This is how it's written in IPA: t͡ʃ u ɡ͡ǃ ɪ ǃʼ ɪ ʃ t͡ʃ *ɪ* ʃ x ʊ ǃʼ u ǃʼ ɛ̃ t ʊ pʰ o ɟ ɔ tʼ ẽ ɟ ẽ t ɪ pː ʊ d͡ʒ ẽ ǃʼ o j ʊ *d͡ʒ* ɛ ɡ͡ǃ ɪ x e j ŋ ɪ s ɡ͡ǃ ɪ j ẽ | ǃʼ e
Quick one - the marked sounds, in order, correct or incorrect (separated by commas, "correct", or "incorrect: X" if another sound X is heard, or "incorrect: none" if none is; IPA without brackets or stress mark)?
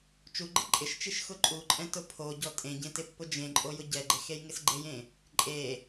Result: incorrect: i, incorrect: ɟ